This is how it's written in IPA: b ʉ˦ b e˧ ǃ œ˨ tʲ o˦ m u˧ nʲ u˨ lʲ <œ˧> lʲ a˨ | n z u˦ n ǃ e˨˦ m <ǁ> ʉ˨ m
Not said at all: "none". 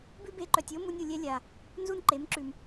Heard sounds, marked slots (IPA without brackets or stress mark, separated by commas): ɛ˧, ǁ